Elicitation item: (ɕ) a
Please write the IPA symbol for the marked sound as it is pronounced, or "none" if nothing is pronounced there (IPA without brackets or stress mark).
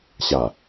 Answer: ɕ